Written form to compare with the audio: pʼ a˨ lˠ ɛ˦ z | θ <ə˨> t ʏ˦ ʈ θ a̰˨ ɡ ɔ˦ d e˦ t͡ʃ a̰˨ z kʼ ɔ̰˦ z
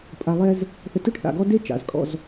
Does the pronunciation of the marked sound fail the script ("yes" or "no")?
no